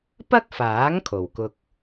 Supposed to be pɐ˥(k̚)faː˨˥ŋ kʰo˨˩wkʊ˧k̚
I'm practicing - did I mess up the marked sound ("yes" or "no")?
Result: no